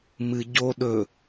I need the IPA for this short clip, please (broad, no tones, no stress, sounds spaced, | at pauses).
m ɨ ɟ o ɗ ɵ